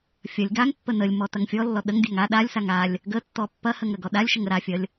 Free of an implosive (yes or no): no